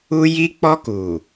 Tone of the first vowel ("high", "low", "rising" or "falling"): high